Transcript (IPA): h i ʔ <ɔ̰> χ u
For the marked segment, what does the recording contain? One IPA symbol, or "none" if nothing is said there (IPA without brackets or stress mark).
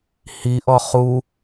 ɔ